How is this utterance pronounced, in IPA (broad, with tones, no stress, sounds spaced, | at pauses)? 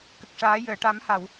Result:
k ə˨˩ k̚ ʂ aː˨˩˦ j əː˨˩˨ ʈ a˨˩˦ m h a˨˩˨ w